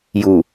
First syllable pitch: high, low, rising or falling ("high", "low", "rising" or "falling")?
low